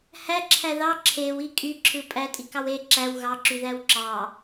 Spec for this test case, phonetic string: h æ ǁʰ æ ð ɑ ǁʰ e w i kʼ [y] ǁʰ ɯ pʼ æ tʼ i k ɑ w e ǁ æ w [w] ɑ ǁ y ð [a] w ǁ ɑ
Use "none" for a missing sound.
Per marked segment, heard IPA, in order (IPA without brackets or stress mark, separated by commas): y, ɣ, æ